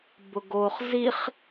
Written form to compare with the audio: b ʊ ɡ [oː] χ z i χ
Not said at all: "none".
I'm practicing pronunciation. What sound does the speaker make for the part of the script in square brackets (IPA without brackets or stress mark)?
oː